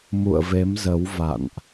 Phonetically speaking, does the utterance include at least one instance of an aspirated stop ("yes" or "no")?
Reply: no